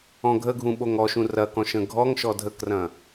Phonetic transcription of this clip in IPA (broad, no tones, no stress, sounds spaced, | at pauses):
ɔ̃ ɡʱ ə ɡʱ ũ ɓ o ŋ ɔ ʃ ũ r ɐ k ɔ̃ ʃ ə̃ ɡʱ ɔ ŋ ʃ ɔ dʱ ə k r ɐ̃